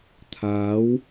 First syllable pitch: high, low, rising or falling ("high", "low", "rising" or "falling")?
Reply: rising